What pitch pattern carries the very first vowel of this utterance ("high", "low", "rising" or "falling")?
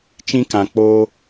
high